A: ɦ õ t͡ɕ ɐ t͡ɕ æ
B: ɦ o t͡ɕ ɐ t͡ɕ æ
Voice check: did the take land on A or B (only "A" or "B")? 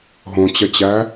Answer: A